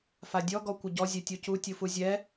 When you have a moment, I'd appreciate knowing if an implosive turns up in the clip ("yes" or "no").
no